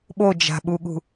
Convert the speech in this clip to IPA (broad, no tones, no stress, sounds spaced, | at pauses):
ɓ o d͡ʒ a̤ ɓ u ɠ ṳ